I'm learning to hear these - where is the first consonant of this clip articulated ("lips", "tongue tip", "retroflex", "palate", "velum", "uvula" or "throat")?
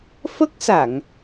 lips